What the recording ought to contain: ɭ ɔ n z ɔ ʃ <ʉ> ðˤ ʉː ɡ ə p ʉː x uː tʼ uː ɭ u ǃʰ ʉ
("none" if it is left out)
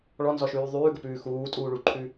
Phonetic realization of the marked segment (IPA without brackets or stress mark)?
ʉː